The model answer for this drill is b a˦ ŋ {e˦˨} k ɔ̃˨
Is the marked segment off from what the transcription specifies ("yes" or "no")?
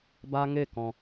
no